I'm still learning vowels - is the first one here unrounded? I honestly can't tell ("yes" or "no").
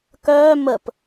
no